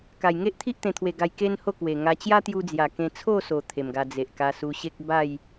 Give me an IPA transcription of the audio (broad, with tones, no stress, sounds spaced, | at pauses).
k a˨˩ j ŋ e˦ ʔ t̪ʰ i˦ ʔ t̪ ẽ˧ t̪ʰ w e˧ ɡ a˧ j k e˦ n h o˥˧ k w e˨˩ ŋ a˧ t͡ɕ j a˦ t̪ j u˧ d͡z j a˨˩ k ẽ˧ t͡sʰ o˥˧ s o˨˩ t̪ʰ e˨˩ m ɡ a˧ d͡z e˨ ʔ k a˧ s u˧ ɕ e˦ k̚ b a˥˧ j